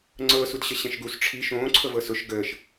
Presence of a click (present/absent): present